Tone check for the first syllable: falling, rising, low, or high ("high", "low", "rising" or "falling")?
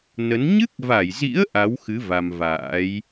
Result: rising